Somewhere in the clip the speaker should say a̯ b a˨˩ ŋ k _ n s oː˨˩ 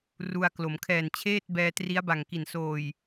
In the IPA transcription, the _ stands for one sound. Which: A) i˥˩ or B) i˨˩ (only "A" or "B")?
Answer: B